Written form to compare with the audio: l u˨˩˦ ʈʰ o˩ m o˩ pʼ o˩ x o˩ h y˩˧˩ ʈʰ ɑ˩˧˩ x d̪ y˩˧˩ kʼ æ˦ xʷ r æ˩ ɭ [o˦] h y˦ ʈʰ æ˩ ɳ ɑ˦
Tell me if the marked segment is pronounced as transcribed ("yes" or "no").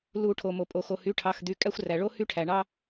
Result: yes